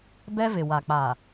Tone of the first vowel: high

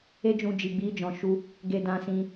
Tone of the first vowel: high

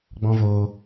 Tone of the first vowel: high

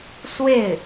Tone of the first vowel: falling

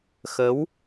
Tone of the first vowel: rising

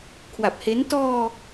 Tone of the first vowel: low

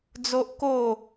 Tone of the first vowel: high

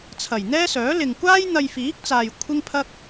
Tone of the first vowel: low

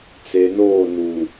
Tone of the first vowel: low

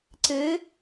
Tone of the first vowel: rising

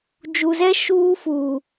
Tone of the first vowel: low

